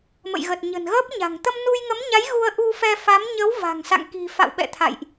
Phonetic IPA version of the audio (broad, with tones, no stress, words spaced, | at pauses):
mə̰˧˨jɣə˨˩t̚ ɲə̤˨˩nɣəː˦˥p̚ɲa̤˨˩ŋ t̪ə˧mnu˧jŋə˨˦mɲa˨˦j ɣu˧ə̯ʔu˧fɛ˧fa˨˦m ɲə˨˦wva̤˨˩ŋsa̰˧˨ŋ ki̤˨˩fa̰˧˨wɓɛ̰˧˨ t̪ʰa̰˧˨jʔ